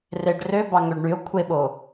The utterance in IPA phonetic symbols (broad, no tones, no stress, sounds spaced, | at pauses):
r e ɖ r ø b ɑ ŋ ø ɖ ɳ y o̯ kʷʰ e ɓ o